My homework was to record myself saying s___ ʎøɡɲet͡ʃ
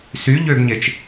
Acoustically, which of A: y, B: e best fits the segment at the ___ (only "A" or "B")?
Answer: A